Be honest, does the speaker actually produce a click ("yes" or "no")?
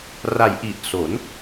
no